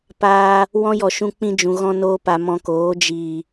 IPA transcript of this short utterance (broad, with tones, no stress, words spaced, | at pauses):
paː˧ | wɔ̃˦jɔ˨ʃũ˧k͡pĩ˧ d͡ʒũ˨ɣɔ̃˧noː˧pa˨ mɔ̃˧koː˨˦ d͡ʒiː˨